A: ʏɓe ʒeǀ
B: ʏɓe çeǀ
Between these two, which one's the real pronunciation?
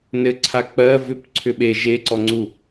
A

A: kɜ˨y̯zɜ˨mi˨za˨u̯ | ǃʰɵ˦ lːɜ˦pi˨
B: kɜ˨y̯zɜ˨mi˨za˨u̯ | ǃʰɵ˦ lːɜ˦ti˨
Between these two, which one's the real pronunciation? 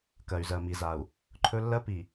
A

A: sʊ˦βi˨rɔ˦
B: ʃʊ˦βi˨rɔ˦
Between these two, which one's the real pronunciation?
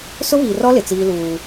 A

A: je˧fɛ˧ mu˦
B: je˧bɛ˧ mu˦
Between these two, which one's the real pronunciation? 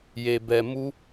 B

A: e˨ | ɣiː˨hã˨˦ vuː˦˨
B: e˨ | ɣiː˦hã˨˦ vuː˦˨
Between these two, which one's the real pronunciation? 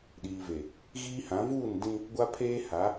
B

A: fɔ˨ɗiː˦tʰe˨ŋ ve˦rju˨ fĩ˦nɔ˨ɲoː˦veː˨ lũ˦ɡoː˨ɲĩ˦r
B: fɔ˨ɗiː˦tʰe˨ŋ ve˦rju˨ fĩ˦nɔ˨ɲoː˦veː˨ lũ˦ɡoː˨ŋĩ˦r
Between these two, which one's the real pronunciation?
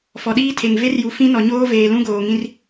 B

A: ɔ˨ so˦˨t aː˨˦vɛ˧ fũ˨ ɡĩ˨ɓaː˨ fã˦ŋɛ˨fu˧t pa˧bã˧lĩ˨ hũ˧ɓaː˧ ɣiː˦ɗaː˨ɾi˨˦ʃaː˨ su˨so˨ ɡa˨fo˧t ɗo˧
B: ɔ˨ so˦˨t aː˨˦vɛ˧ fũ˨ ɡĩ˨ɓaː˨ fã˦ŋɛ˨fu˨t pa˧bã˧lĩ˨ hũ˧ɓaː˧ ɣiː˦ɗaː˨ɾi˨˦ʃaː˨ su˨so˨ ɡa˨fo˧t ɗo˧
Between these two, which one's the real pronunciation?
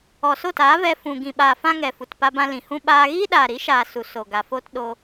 B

